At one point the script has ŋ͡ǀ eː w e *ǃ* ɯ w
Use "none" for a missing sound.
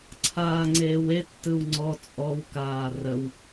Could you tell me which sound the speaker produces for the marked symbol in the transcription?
tː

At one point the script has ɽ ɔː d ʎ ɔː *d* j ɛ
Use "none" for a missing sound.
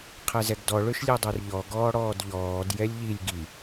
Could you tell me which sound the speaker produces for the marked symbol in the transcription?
d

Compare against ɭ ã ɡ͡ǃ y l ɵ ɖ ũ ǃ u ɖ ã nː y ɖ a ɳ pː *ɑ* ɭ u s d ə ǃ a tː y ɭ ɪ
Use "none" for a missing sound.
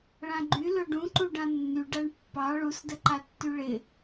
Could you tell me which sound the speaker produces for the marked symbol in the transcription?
ɑ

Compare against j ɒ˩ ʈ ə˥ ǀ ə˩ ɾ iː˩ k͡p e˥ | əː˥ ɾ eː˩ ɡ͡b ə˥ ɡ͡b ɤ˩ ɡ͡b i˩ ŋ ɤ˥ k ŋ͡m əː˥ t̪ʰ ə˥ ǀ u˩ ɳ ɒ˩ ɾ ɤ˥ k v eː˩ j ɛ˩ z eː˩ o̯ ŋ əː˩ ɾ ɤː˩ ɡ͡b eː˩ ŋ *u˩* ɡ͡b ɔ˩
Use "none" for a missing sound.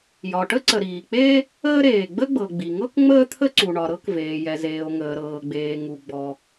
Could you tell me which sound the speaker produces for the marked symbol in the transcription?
u˩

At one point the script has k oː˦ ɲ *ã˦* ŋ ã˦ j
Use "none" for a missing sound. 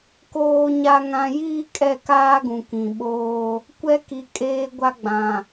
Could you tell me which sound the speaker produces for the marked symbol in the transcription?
a˦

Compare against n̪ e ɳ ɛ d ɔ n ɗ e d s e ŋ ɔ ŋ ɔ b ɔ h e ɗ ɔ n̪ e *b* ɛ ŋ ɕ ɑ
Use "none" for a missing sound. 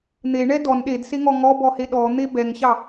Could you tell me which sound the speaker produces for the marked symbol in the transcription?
b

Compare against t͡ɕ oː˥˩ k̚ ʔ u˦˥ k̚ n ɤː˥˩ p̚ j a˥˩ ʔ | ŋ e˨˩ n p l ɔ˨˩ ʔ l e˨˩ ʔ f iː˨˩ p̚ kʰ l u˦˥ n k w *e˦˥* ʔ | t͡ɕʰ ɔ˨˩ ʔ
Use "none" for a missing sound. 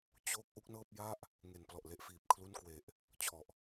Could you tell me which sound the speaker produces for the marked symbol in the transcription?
e˨˩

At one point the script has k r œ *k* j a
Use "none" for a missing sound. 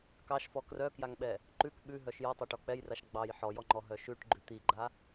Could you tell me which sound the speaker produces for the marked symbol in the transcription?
k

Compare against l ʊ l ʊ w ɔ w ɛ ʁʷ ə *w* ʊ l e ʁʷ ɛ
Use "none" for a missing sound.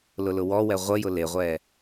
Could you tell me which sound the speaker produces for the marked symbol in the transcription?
j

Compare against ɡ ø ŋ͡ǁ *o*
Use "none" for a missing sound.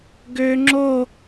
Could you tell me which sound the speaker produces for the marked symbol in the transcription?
o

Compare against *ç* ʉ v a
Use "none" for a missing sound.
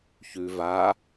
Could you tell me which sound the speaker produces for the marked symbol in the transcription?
ç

